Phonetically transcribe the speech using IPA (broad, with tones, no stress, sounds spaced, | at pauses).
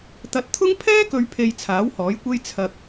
t̪ ɐ˨˥ t̚ t̪ʰ ʊ˥ ŋ pʰ ɛː˥ k ɵ˨ ɥ pʰ e˨ j t͡sʰ aː˨˥ w h ɔː˨˥ j kʷ e˥ j t͡sʰ ɐ˧ k̚